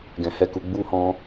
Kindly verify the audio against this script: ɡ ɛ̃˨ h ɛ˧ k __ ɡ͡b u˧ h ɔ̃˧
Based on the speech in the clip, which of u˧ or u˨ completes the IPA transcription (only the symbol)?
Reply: u˨